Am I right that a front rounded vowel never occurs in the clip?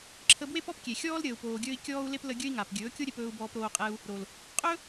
yes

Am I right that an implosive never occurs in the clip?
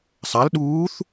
no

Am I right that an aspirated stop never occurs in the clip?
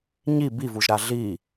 yes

